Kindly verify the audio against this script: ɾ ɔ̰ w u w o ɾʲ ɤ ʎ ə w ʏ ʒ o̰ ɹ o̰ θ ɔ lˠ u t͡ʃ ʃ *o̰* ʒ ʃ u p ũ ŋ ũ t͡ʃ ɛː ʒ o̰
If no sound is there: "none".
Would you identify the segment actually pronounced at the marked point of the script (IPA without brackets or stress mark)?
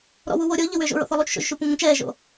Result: o̰